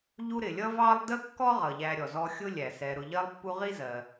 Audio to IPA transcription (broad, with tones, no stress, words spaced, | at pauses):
ʎu˦ɾɪ˩lʲʌ˥vɑ˥lˠ də˥kːɔ˥ʁʌ˩ʎæ˨ ɾʲɔ˩zɔ˦ xʲʊ˥lʲæ˩sɛ˨ ɾʊ˨ʎɜ˦lˠpːu˦ʁi˥ zɜ˨